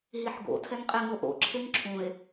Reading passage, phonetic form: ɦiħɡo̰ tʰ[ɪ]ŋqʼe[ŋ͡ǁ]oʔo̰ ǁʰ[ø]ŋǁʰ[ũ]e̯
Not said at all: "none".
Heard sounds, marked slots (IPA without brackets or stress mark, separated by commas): ɛ, ŋ, e, ũ